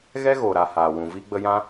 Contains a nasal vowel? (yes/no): yes